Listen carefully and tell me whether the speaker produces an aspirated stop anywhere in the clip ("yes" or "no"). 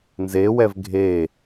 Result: no